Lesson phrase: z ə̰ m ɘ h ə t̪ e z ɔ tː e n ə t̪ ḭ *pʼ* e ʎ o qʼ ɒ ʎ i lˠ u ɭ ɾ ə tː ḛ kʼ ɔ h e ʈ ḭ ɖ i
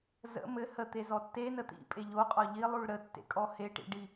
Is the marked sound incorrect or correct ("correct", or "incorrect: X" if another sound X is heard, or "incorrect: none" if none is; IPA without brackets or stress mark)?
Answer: correct